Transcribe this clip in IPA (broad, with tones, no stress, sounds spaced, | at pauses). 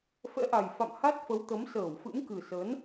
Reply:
f ɛ̰˧˥ ʔ a˨˩ j f a̰˧˨ m h a˦˥ t̚ f ə˨˦ w t̪ ə˨˦ m s əː˧˩ w f ɨ̰˧˥ m k ɨ˨˩ s ə˨˦ n